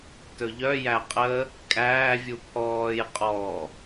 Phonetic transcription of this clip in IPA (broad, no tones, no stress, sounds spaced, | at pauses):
t ɵ ʎ œ j æ qʼ ə | kʼ æː vʲ u pʰ ɔː j qʼ ɔ